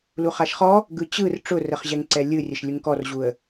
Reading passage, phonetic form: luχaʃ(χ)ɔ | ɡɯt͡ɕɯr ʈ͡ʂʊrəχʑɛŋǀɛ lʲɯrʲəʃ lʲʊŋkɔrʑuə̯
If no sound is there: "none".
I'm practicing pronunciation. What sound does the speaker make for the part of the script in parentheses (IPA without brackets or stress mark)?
χ